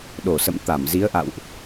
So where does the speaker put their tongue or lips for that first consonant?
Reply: tongue tip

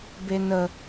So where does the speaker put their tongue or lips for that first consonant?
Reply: lips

